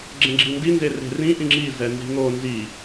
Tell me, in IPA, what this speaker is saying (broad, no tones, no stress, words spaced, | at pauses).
ɡ͡ǁɛ̃ɡ͡ǁindi nzere̤rĩ ʔĩŋ͡ǁi zɛnzi̤ŋo nzi